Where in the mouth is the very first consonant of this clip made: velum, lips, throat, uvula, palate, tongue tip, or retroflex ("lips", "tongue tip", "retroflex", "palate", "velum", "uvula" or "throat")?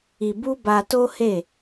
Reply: lips